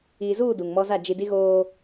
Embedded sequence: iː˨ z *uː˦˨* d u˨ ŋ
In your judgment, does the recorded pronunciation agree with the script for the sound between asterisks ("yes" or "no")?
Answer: yes